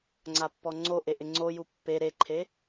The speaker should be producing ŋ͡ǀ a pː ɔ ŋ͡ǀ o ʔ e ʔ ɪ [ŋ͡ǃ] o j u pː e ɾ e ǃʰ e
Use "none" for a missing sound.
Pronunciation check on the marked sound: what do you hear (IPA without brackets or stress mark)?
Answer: ŋ͡ǀ